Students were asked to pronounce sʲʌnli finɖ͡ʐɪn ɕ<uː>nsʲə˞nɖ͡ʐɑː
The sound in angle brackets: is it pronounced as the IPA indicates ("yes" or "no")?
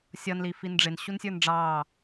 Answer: no